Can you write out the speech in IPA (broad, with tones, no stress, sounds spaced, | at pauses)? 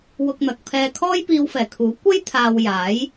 w ʊ˧ k̚ n̪ ɐ˨ k̚ pʰ ɛː˧ kʰ ɔː˥ j p iː˧ w f ɛː˨˩ kʰ uː˨˥ kʷ ɐ˥ j t̪ʰ aː˨ w j aː˨˥ j